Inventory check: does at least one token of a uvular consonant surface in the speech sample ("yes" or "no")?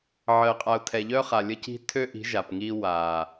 yes